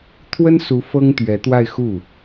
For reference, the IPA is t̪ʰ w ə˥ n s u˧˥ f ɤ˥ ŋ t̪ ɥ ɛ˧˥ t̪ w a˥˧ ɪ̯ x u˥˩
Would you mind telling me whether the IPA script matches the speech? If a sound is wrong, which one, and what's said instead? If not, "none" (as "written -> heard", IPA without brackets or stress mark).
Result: none